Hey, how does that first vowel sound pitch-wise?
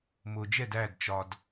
low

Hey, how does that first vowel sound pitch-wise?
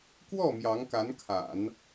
falling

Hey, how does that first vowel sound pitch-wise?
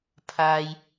low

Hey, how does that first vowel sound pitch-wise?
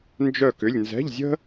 falling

